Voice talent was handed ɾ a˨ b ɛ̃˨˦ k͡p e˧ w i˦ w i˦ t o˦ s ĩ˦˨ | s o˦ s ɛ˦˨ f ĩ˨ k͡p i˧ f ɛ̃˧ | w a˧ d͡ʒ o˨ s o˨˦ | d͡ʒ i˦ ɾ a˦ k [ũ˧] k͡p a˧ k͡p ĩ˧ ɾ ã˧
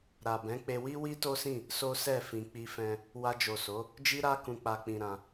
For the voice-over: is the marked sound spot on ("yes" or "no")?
yes